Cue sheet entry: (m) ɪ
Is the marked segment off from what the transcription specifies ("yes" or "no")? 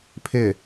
yes